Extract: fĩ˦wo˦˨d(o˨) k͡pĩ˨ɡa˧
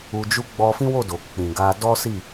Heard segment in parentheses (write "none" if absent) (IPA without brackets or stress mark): o˨